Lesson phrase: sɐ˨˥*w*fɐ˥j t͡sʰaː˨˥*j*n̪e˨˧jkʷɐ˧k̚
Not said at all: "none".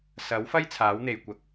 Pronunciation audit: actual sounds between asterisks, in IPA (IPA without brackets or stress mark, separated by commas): w, w